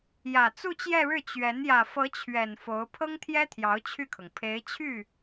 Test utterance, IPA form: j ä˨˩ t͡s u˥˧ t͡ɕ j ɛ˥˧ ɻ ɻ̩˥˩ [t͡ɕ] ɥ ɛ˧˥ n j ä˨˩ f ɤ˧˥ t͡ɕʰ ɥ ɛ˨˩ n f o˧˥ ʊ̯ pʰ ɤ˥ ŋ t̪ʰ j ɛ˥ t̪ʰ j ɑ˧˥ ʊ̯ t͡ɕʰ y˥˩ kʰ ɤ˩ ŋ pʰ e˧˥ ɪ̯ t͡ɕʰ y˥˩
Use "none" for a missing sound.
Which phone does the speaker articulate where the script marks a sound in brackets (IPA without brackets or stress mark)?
t͡ɕ